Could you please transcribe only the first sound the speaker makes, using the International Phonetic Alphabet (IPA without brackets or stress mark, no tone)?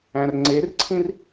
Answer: æ̃